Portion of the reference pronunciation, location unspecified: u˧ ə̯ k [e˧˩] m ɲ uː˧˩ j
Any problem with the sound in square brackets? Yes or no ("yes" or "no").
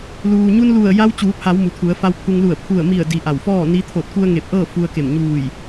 no